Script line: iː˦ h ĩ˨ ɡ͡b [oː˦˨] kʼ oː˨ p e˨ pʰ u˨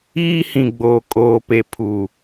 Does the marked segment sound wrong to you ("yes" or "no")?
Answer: yes